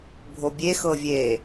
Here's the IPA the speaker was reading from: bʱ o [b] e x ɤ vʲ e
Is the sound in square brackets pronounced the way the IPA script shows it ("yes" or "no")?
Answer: no